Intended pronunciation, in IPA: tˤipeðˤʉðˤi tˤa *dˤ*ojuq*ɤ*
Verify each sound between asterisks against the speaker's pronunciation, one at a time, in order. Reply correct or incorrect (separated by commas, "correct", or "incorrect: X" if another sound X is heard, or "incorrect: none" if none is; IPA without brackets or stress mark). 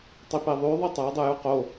correct, incorrect: o